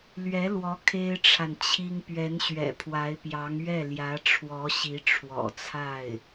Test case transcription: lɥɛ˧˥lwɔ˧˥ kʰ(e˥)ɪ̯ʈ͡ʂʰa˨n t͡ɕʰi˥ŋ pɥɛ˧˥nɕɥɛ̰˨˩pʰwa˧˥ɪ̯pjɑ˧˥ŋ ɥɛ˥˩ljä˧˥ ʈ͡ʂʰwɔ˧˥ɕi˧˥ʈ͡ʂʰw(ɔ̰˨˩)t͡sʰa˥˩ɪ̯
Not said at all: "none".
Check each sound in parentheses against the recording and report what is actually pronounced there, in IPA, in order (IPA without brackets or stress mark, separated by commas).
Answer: e˥, ɔ̰˨˩